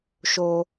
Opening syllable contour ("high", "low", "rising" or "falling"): high